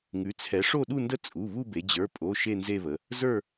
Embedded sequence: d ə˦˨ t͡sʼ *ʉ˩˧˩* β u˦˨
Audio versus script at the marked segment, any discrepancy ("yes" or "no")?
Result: yes